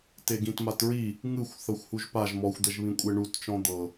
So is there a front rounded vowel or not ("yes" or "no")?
no